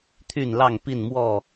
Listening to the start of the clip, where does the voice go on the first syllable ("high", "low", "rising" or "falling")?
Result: falling